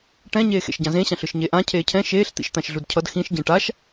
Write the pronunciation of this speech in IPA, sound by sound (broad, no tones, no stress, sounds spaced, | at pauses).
ʈ ɛ̃ ɲ eː x ḛ ʃ ɟ ã z ẽ ɕ ã ɬ ɯ ʃ ɲ e ʔ ã cʰ eː cʰ ɛ̃ ʃ eː ɬ t̪ ḭ ʃ t̪ ã ʃ ɮ u d cʰ ʌ d x ĩ ʃ ɟ ẽ ʈ a ʃ